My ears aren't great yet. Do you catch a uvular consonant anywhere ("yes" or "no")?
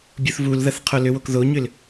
yes